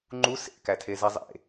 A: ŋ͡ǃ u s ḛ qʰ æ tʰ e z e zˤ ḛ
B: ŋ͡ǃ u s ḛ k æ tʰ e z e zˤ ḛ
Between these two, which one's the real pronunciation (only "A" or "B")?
B